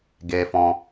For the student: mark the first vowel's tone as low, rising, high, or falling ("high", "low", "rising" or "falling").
high